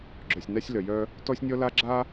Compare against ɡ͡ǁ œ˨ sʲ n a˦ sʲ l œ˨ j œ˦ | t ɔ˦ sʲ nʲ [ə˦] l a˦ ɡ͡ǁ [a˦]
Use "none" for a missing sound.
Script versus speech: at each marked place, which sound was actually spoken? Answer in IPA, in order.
ɔ˦, a˦

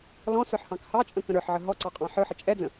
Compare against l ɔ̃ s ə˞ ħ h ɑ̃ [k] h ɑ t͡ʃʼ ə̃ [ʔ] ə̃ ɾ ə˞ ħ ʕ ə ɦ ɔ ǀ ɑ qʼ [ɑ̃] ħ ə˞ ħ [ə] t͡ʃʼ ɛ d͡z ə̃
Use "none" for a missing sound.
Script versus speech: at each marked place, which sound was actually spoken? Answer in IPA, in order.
k, k, ɑ̃, ə

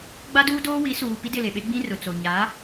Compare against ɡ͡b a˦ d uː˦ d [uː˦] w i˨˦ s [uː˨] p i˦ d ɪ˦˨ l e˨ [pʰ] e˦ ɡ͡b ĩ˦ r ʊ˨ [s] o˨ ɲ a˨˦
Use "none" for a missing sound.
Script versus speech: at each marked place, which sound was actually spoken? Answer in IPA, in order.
oː˦, uː˨, ɓ, t͡s

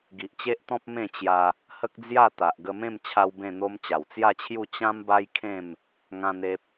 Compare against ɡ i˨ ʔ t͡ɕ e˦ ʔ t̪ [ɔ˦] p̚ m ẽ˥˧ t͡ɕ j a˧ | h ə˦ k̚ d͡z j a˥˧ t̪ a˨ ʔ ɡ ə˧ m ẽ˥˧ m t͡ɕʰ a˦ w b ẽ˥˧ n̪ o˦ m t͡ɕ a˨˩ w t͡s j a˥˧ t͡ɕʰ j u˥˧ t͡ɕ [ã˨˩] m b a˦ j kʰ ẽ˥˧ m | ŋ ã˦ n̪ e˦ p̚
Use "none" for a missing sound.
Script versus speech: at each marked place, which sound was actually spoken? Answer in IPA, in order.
ɔ̃˦, ã˦

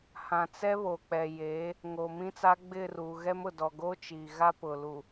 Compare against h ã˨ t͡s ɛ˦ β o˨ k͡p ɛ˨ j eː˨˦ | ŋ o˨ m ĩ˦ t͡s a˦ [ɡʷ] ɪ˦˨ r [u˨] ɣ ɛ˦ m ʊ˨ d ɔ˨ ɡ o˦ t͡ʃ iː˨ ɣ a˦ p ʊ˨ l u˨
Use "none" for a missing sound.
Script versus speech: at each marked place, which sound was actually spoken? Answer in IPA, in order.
ɡ͡b, u˨

